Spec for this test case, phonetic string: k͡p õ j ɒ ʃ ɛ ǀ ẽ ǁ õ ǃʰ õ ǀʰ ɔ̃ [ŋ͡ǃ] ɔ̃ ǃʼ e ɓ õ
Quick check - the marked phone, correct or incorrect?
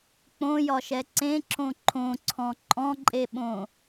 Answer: incorrect